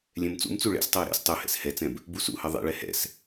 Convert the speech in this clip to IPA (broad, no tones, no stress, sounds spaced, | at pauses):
lʲ ɛ̃ m t͡s ṵ m t͡s u ɭ ɛ̰ s tˤ ɛ u̯ ɾ ɛ̰ s tˤ u h ɛ̰ s h ɛ t͡s ɛ̃ b | b u s ṵ h ɐ ðˤ ḛ ɭ ɛ h ɛ̰ s